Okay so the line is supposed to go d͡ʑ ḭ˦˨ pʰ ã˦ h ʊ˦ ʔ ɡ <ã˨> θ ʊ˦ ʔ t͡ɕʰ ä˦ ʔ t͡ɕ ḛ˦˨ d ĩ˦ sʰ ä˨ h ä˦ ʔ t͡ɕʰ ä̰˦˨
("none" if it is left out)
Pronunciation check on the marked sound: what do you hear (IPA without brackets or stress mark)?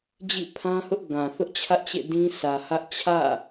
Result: ã˨